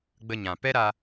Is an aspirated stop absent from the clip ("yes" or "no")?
yes